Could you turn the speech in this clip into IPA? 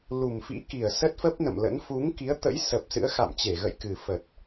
lu˨˩mfḭ˧˥ki˨˩ə̯ sə˦˥t̚fə˦˥p̚nə̰˧˨mlə̰˧˥n fu˨˦ŋki˨˦ə̯t̪ə̰˧˥j sə˨˩p̚ sɨ̰˧˥ə̯xa̰˧˨mt͡ɕe˧˩ ɣə̰˧˨jkɨ˨˩fə˨˩t̚

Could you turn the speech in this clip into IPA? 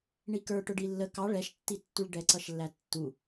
ɳikə˞ʈʊ ɖilːə kɑ ɭɛʃtːitːuɭ ɖɛǀʌʃlːætːu

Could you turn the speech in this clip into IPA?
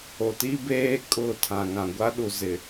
o˨ti˦beː˦ kʼʊ˦˨tʰã˨ŋã˨ ɡʷa˦ɗu˨zɪ˨

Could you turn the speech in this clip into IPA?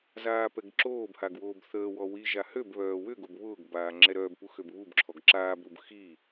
zaːpɛɡǁoːbhaɡ woːbθəːwɔ wiʒa høbβœː wʏɡob βʊːɡbaː ŋ͡ǁɛɾœːbpu xøbβubǁʰɔɡ ǁaːbɾub xi

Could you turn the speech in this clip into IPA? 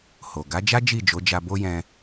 ho˨ ɡa˨˦d͡ʒa˦ d͡ʒi˦˨d͡ʒo˨˦d͡ʒa˧ bo˦jɛ̃˧

